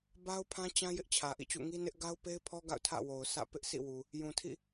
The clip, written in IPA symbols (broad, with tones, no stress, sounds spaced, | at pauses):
b a˦ ʊ̯ pʰ ã˦ t͡ɕ ã˦ j ɪ˦ ʔ t͡ɕʰ ä˨ ʔ ḭ˦˨ t͡ɕ ṵ˦˨ ŋ i˦ n ɪ˦ ʔ ɡ a˦ ʊ̯ p e˦ ɪ̯ pʰ ɔ˦ ɡ a̰˦˨ ʊ̯ tʰ ä̰˦˨ w o˨ ʊ̯ sʰ ä̰˦˨ p ɪ˦ ʔ s ḭ˦˨ w u˨ | j ũ˨ tʰ ḭ˦˨